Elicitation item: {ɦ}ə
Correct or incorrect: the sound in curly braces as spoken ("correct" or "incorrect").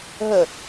correct